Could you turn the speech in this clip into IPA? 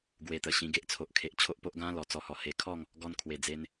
ɡwe˧t̪ə˨˩ɕĩ˧ ɡe˦ʔt͡sʰo˨ʔ kʰe˨ʔ t͡ɕʰo˦ʔpo˦ʔ ɡã˦lɔ˨˩ t͡sɔ˨˩hɔ˨˩ he˨˩kʰɔ˥˧ŋ | ɡɔ˧nkʰwe˨˩d͡ze˧n

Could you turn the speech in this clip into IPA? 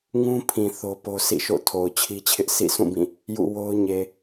ŋũ˦pʰĩ˨ θo˦po˦ sḭ˦˨ʃo̰˦˨tʰo˨ʊ̯ t͡ɕʰi˦t͡ɕʰɪ˦ʔ sḭ˦˨sʰũ˦˨bĩ˦˨ | jṵ˦˨wo˦ʊ̯ɲe˨

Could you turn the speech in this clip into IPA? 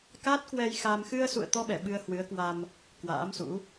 ka˦˥t̚kwɛ˧jxa˧m xɨ˧ə̯sṵ˧˨ə̯t̪ɔ˧ɓɛ˧˩ ɓɨ˧ə̯hwɨ˨˦ə̯kwa˧m | kwa̰ː˧˥msṵ˧˥

